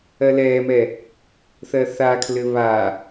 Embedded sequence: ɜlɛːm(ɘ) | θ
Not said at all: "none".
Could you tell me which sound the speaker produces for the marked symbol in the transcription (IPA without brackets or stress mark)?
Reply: ɛ